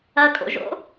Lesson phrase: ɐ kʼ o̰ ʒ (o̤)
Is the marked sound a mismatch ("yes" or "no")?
yes